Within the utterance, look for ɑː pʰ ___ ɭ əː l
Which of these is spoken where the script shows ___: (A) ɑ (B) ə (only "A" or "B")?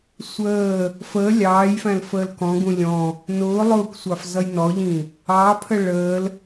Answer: B